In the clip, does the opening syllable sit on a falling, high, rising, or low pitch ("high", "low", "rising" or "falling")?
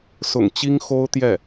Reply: low